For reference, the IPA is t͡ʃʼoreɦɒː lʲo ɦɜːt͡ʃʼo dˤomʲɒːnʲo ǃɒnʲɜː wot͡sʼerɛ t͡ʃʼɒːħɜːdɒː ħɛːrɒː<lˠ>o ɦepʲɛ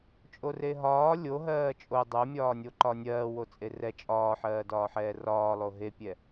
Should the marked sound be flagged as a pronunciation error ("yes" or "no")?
no